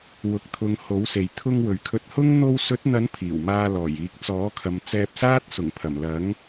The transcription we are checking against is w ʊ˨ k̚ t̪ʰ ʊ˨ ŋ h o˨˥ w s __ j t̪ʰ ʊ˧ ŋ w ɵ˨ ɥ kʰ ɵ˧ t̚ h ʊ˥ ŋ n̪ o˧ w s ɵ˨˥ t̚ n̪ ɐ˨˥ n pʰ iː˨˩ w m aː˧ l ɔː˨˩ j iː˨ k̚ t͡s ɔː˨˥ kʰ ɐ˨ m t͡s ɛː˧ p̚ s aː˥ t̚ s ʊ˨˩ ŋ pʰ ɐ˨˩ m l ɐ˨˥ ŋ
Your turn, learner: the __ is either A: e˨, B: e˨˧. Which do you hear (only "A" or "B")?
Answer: A